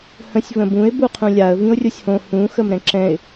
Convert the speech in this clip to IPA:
h ə̃ sʲ v ə̃ b ũ ɪ̯ b u qʰ ũ lʲ a ə̯ v ĩ ʊ̯ rʲ o sʲ h õ h ũ x ə m ɾ ɛ̃ ǁ ɛ̃ ɪ̯

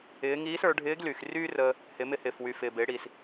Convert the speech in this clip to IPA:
ɪː˩˧ ŋ iː˧˥ s ə˞˩˧ ɖʱ ɪː˧˥ ɡ l y˩ x r yː˥ r əː˧ | h ɪ˩˧ m ɪ˧ h ɪː˩ f w y˩ f ɪː˩ b ɪː˩˧ ɽ iː˩ s

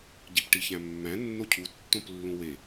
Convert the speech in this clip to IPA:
ɟ i p ʈ i ç æ̃ mː æ̃ nː o cʰ u tː õ p lː ũ w e

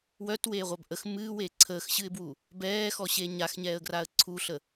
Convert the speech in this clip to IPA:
w œ t w eː ʁʷ a b ʔ ə x m ɨː w eː ǀʰ əː x ɕ ɨ ɪ̯ b w u | b ɛː x ɔ ɕ e ɲ a x ɲ ɛː ə̯ ɡ r a ə̯ ǀʰ u ɬ ə

